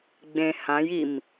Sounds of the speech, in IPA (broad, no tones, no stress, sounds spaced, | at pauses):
ɡ͡b ẽ h ã j i m